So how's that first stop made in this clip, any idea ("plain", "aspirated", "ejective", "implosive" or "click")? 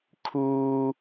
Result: aspirated